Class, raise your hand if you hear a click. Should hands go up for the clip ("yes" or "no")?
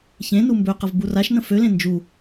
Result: no